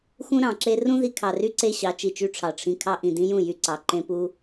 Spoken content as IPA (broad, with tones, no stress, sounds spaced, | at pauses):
x ũ˦ ɾ ɑ̃˨ ǁ e˦ r ũ˦ ð i˧ kʰ ɑ˨ r y˦ ǀ e˦ ɕ ɑ˨˦ t͡ʃ i˨ t͡ʃ y˦ ʈ͡ʂʰ ɑ˨ ʈ͡ʂʰ ĩ˧ kʰ ɑ˦ ʔ ĩ˨ d ĩ˦ j ũ˦˨ j y˧ ǀ ɑ˨ ǃ ẽ˦ p u˦